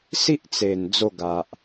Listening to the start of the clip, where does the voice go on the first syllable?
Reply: high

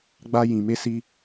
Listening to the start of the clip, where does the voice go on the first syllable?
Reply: high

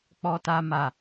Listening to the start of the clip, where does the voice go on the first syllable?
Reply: high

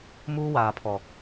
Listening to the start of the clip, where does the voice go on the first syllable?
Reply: high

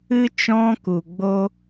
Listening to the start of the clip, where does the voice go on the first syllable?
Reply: high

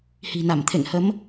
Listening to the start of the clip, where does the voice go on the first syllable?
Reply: low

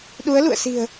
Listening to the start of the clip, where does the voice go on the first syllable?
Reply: rising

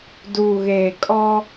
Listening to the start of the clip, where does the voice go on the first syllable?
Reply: low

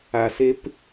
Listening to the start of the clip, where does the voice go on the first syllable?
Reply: low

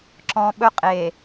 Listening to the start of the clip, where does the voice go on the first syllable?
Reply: low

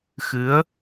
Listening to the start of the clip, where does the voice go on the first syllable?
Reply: rising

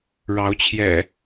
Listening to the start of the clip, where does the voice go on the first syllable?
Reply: rising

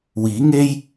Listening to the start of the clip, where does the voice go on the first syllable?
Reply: rising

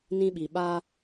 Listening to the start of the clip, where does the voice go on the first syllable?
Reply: high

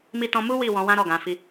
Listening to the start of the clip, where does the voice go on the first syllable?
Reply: high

